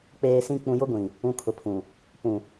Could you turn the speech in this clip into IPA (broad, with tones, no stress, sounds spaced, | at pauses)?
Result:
k͡p eː˨ s ĩ˨ k͡p ũ˨ j ʊ˦ ɡʷ ĩ˨ | ũ˨ kʰ ʊ˨ pʰ ũ˨ | p ũ˨